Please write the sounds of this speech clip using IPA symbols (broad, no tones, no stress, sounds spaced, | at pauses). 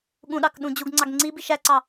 ɠ ũ ɗ ɑ k ɗ ũ d͡ʑ u ɡ ŋ͡ǀ ɑ ɡ ŋ͡ǀ i b i ʃ æ ǀ ɑ